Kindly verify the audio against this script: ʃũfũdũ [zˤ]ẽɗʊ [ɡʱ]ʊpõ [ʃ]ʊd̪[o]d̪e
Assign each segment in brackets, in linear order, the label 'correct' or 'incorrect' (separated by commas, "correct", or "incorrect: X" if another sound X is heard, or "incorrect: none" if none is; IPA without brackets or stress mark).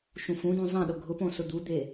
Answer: correct, correct, incorrect: s, incorrect: u